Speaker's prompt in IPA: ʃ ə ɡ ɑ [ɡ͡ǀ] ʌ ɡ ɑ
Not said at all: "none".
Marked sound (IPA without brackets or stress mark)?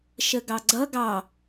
ɡ͡ǀ